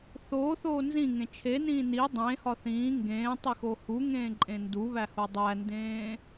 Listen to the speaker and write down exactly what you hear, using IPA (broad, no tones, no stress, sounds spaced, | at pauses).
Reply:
θ oː θ oː n z ĩ ŋ ẽ t͡ʃʰ e n ĩː n i dˤ ẽ h ɒ θ ĩː ŋ ɡ ẽː tˤ i x o h u ŋ ẽː ǃʼ ẽ n d u β æ h o dˤ æ n d ẽː